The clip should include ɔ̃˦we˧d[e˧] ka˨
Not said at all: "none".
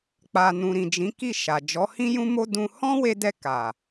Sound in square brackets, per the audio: ɛ˧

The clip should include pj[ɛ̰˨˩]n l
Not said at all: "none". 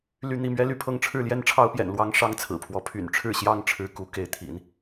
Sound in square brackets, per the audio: ɛ̰˨˩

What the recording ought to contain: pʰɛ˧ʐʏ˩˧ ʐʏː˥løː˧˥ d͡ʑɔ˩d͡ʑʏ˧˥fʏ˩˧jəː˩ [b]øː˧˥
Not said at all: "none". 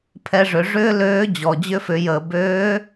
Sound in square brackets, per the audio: b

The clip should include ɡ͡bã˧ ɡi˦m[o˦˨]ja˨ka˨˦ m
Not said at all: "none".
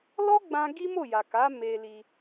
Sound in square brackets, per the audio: o˦˨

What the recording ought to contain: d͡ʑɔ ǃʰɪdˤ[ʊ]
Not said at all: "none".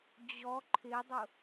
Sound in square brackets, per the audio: ʊ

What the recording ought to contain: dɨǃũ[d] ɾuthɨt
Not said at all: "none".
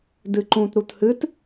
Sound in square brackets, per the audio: t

